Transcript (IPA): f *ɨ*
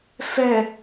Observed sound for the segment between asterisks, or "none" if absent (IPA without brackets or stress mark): ɛ